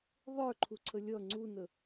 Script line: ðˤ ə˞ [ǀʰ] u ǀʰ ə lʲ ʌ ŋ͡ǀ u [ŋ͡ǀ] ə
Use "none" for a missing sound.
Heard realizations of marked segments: ǃʰ, n

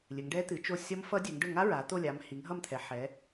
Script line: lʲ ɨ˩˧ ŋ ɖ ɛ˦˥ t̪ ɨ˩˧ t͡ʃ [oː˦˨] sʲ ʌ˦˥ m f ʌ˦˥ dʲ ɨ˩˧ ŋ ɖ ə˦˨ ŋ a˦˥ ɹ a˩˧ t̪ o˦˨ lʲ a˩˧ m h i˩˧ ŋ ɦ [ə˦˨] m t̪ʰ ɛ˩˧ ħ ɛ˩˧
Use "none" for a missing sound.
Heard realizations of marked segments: o˦˨, ʌ˦˨

